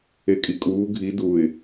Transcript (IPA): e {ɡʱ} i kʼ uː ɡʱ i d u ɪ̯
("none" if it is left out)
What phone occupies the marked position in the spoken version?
kʼ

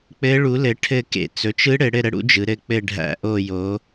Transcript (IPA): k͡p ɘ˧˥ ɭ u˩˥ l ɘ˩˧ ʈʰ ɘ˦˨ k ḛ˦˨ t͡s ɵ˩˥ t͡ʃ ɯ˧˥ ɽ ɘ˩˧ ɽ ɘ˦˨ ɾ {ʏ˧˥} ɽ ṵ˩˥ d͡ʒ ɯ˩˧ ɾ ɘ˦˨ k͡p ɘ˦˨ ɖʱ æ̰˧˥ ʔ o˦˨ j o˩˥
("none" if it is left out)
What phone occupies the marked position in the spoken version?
ə˧˥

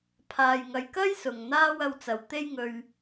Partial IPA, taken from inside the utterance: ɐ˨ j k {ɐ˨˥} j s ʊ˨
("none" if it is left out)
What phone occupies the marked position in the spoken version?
ɐ˥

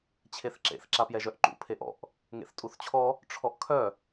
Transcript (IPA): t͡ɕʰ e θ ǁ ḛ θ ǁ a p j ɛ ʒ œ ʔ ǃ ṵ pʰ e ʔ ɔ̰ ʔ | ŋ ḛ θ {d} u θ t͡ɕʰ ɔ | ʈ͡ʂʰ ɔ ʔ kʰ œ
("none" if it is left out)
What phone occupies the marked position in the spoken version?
tʼ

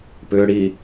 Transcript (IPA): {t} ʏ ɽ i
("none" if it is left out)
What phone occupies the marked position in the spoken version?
p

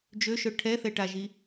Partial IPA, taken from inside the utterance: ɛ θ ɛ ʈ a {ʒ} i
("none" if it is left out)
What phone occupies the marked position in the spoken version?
ʒ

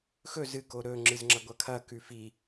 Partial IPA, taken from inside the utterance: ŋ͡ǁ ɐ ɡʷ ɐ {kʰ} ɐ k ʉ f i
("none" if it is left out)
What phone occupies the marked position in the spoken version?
kʰ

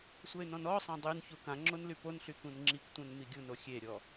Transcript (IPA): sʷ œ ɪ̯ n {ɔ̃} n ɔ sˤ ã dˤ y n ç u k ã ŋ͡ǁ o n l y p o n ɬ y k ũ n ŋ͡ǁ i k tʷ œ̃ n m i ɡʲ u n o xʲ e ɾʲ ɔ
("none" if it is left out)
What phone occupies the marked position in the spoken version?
ɔ̃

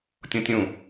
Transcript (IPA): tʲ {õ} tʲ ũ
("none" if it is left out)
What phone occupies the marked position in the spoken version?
õ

